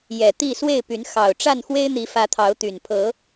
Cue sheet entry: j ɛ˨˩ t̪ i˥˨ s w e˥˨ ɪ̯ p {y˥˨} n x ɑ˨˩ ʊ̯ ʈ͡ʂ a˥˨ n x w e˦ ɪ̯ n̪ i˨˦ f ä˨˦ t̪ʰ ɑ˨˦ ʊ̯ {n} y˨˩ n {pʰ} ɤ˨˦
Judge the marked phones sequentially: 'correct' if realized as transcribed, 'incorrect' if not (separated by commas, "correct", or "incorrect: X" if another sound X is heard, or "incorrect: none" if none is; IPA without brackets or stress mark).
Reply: incorrect: y˨˦, incorrect: t̪, correct